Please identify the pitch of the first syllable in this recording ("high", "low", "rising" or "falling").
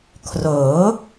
rising